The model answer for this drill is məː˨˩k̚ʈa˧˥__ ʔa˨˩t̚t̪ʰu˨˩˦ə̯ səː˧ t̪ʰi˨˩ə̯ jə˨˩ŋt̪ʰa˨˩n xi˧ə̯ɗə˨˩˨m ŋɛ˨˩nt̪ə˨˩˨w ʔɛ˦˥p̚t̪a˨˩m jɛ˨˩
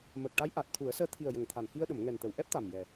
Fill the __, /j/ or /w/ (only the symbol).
j